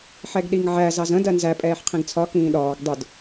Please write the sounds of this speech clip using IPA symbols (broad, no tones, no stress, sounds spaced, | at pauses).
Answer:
ħ ɛ ɡ ɗ i ŋ ʕ æ z ɑ z ə̃ d ɜ n z æ pʼ ɛː ħ qʰ ĩ ɡ t͡sʰ ɒ k ĩː ɗ ɒː ɡ dˤ ʊ d